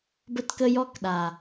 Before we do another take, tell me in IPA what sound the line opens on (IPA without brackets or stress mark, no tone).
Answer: b